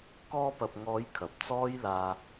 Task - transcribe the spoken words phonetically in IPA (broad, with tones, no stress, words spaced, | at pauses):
kɔː˧pɐ˨p̚ŋɔː˨˧j kʰɐ˨p̚t͡sɔː˥j laː˧